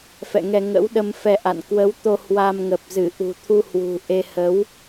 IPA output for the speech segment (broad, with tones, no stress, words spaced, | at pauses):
fɛ̰˧˨ŋɛ˧ ŋə̰˧˥wɗə˧m fɛ˧ʔa̰˧˨n kwə˨˦wt̪o˧ hwa˧mŋə˨˩p̚zɨ˧˩ ʔṳ˨˩t̪ʰu˧hwṳ˨˩ʔe˧ hə˨˦w